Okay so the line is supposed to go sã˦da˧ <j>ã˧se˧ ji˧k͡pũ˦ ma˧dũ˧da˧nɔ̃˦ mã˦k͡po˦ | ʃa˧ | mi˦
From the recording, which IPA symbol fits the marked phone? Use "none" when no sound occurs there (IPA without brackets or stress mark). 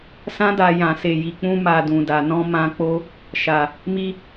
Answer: j